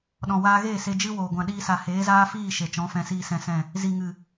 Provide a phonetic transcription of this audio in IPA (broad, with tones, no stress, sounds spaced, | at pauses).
ɗ ɔ̃˨ w aː˧ ɣ eː˦˨ s e˧ d͡ʒ ɨ˦ w oː˨ ɡʷ ã˨ ɗ iː˧ s a˨ h eː˨˦ z aː˦ f iː˦˨ ʃ e˨ t͡ʃ ɔ̃˨˦ f ɛ̃˧ s iː˧ s ɛ̃˧ s ɛ̃˦˨ | z i˨ ŋ ɨ˨